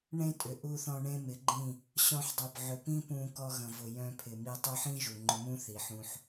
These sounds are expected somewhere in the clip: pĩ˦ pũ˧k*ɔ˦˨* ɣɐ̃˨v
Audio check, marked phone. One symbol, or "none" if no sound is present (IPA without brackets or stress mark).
ɔ˧